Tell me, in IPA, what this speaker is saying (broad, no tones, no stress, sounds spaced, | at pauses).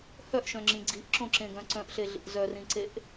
h œ ʔ ʃ œ̃ ŋ͡ǁ ĩ ɡ͡ǀ i ʔ ǁ õ ǁ ẽ ɡ œ̃ ǀ œ̃ ʔ ɬ e ɮ ḭ ʔ z œ r ĩ ǀ e ʔ